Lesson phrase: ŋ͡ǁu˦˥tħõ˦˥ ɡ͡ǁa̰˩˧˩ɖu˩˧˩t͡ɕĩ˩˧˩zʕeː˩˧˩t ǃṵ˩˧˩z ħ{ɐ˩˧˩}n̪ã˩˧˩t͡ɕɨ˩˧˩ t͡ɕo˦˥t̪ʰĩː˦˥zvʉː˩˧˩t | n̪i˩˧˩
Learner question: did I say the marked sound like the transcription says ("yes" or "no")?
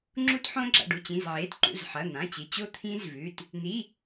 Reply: yes